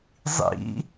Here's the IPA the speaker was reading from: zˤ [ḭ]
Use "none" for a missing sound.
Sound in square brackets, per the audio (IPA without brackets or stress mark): ḭ